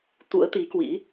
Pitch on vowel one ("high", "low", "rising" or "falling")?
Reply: rising